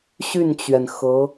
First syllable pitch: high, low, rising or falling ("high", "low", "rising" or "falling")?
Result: falling